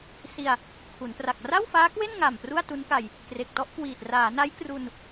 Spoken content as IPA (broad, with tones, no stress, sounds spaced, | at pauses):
s i˧ a̯ | kʰ u˩˦ n p r a˨˩ k̚ r a˥˩ w f aː˦˥ k w e˥˩ n ŋ a˨˩ m p r u˥˩ a̯ t u˦˥ n k a˧ j | k r e˨˩ k̚ t ɔ˥˩ ʔ k w iː˨˩ t̚ r aː˩˦ n a˦˥ j k r u˧ n